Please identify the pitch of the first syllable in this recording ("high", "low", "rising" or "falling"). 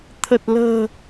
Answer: low